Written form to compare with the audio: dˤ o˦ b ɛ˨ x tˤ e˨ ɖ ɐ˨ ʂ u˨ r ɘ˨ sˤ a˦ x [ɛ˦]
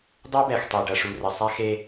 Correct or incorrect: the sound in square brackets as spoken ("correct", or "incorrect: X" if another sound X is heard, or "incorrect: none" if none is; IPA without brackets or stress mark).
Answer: incorrect: e˦